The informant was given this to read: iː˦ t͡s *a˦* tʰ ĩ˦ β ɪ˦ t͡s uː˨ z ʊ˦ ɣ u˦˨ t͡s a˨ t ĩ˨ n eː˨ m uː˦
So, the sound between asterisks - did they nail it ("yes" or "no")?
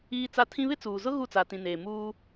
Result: yes